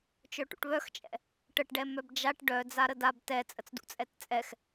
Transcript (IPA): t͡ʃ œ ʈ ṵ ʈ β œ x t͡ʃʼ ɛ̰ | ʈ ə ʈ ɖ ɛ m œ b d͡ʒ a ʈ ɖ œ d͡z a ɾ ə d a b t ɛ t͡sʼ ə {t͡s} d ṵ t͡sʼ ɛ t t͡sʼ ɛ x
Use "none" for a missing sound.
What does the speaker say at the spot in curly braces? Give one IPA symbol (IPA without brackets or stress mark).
t͡s